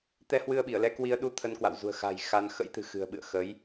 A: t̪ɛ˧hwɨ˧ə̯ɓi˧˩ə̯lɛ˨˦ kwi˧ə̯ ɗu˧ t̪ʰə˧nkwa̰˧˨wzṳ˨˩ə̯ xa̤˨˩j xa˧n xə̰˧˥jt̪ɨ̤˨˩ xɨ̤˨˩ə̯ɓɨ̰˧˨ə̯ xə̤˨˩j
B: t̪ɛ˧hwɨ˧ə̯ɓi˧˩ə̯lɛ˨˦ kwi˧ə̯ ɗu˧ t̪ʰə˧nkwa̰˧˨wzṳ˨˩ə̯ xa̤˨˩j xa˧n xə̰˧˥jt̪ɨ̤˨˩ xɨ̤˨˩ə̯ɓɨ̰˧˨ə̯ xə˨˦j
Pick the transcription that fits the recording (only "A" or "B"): B